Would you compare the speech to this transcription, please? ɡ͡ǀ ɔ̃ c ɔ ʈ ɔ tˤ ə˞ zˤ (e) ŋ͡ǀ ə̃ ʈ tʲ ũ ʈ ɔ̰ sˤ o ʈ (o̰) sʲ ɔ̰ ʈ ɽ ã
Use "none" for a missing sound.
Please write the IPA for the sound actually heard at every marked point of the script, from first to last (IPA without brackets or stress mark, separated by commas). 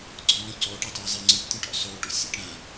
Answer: e, o̰